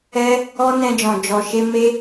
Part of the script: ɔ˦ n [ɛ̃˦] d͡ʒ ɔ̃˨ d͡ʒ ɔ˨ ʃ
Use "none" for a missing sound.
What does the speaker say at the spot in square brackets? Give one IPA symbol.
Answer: ɛ̃˧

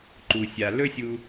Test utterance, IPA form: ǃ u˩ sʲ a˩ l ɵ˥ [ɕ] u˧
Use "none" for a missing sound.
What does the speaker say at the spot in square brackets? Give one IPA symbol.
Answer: sʲ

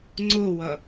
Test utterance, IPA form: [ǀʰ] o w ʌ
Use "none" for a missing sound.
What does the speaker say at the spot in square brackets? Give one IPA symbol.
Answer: ŋ͡ǀ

